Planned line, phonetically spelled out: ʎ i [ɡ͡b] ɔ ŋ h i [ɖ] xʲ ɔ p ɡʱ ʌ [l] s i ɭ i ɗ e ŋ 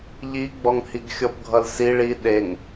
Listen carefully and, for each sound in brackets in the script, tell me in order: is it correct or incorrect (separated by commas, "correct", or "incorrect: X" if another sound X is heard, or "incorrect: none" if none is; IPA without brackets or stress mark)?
correct, incorrect: ɡ, correct